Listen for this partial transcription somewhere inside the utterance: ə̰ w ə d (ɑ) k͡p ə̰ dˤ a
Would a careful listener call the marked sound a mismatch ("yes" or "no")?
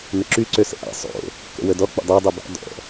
yes